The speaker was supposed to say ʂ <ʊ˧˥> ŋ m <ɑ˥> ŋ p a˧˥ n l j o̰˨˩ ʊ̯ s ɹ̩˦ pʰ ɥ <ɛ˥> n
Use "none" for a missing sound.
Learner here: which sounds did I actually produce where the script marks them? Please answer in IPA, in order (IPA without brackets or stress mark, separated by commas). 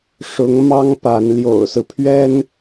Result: ʊ˧˥, ɑ˥, ɛ˥